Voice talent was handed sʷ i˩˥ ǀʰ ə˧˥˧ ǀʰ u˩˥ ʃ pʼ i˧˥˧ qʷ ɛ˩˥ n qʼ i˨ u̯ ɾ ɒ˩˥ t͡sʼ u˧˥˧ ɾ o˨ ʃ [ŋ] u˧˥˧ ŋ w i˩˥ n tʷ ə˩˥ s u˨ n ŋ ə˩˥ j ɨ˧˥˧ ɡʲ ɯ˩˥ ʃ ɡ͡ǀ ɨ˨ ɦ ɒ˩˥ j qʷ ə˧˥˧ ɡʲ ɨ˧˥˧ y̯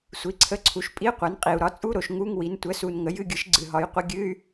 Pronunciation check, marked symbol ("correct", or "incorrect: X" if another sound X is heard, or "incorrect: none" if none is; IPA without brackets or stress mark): correct